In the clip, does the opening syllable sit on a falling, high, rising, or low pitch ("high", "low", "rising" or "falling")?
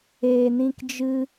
low